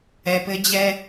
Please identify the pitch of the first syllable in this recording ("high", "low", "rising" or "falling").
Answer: low